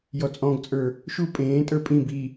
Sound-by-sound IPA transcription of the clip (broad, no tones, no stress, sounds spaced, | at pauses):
j ɔ t͡sʼ ɔ̃ ɡ t͡sʼ ə˞ | ʃ u pʼ ẽː tʼ ə˞ pʼ ĩ b i